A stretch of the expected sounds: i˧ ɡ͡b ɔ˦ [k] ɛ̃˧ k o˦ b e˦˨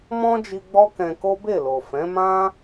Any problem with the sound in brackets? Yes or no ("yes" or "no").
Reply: no